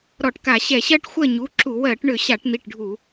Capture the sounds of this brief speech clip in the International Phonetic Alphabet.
ɾɔ˧˩˧ʈka˧˩˧ɕɛ˧˩˧ ɕɜ˦ʈxʷɜ˦˨ɲu˩˧˩ǁu˧˩˧ wɜ˧˩˧ʈɳʏ˧˩˧ ɕa˧˩˧ʈn̪i˩˧˩ʈɖʱu˧˩˧

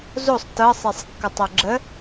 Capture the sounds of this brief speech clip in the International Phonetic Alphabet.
zosˤ tɤsˤesˤkːʌtˤo ɡ͡ǁə

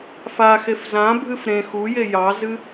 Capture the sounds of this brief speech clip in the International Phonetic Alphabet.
faxef zãbʱɨf ɾẽ xuje jɑzɨ

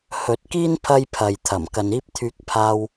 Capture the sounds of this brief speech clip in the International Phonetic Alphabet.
hɵ˨t̚kiː˥n pʰɐ˥jpʰɐ˨jt̪ʰɐ˨˩m kɐ˨niː˥p̚t̪ʰyː˧k̚ pʰaː˧w

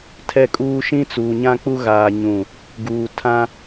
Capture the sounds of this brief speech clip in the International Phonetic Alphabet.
tʰɛ˦˨kʼuː˦ ʃĩ˦ t͡suː˨ɲã˦k͡pu˦ ɣaː˦ɲũ˦˨ | ɡuː˨tʰã˦

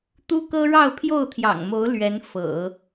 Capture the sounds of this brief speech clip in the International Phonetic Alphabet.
t̪u˥kɤ˥ɻɑ˥˧ʊ̯ pʰjo˥˩ʊ̯t̪ʰjɑ̰˨˩ŋmo˧˥ʊ̯ lɥɛ˧˥n fɤ̰˨˩˦

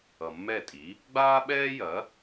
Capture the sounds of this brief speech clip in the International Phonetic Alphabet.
ʌ˨mːɛ˥˩tʼi˩˥ | ɡ͡baː˥ɓɛː˥jɐ˩˥

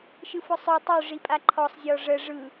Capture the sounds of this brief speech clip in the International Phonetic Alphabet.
ʃɯfʊsˤø tˤø ʐipʼaǃʰɔsˤ zʲɔʐə ʐɯ

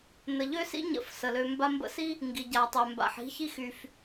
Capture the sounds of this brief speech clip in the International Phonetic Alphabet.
nə˨ʎø˦sḭ˦ ɲə̰˦˨fsə˨lø˧ mba˧mbə̰˧si˦ | ŋɡi˨ɟa˨tˤœ˨ mba̰˨ħi̤˦çi˦x y˨f

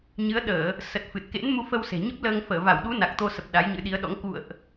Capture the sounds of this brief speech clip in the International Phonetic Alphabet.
ɲɨ˨˦ə̯ɗəː˧˩˨ | sə˨˩t̚ fɨ˨˩t̚kḛ˧˥nmu˧ fə˧wse̤˨˩ɲə˦˥p̚ləː˧ŋ fəː˧˩va˧˩wɗu˨˦ na˨˩k̚t̪o˧sə˨˩p̚ ɗa˨˦jɲɨ̰˧˥ɗi˨˦ə̯ɗɔ̰˧˥ŋ kṵ˧˨ə̯ʔ

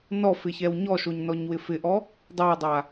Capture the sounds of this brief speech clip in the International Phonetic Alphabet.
nɔfɪçɛw ɲɔʃoɲnɔɲwɪ fɪʔɔ | dˤaə̯dˤa

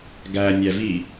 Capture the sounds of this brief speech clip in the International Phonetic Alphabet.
ɡæ nʲævi

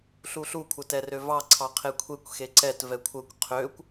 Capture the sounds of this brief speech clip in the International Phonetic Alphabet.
ɬuɬu kʷʰətɛrøvɑ ǀʰɑqʰekʷʰekʷ xeǀɛt vɛkʷʰəkʷ qʰøkʷ

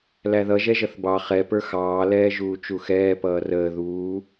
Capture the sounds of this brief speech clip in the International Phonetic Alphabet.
læðʌ ʒɛʒʌθbɑ χɛ pə˞xɑː lɛːʒuːt͡ʃuxɛː pʌːrəː ðuː

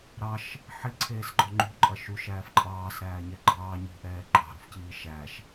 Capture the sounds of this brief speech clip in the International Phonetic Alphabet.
ɾɑʃ | ħiǀʰeːsɡ͡ǃɔ ŋ͡ǃṳǃʼɐ ʃuʃæːf ǃʼɑːsɾæːɲɛ ɡ͡ǃɑː ɲṳʔɛː ǃʼɑ̤ɾṳfciː ʃæʃ

